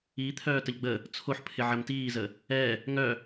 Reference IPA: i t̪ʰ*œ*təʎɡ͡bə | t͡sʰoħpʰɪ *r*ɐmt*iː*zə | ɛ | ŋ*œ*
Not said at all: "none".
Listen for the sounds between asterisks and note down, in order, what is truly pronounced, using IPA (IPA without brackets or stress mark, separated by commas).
œː, ʕ, iː, œ